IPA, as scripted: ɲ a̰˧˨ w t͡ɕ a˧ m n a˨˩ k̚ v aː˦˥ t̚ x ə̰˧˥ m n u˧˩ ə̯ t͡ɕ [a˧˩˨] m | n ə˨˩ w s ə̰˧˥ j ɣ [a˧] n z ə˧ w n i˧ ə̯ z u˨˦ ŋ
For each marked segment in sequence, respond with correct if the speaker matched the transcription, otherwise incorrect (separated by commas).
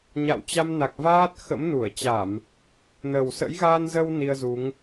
correct, correct